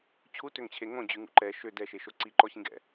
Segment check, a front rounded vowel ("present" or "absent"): present